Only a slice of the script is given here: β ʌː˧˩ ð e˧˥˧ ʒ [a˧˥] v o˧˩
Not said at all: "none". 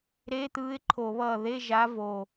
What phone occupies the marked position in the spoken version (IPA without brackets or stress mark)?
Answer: a˧˥